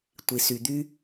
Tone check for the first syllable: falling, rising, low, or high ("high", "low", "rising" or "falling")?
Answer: low